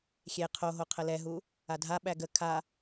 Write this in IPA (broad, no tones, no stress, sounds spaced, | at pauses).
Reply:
xʲ e qʰ o ɦ o qʰ ə l ɛ ɦ u | a dʱ a ɓ æ ɡ ə kʰ a